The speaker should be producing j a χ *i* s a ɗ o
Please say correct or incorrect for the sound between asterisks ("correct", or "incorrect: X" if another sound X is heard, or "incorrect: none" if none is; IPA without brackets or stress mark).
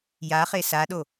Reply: incorrect: e